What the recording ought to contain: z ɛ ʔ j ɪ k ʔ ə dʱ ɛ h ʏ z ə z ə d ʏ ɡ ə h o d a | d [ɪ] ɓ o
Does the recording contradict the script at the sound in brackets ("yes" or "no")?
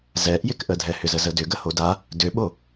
yes